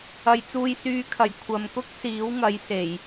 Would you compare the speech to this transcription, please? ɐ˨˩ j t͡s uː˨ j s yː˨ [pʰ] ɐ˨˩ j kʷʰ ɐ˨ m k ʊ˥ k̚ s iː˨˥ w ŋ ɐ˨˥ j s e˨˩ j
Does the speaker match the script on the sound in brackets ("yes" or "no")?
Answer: no